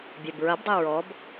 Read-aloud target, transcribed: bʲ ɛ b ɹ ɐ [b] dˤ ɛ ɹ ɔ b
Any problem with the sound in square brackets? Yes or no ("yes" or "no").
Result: no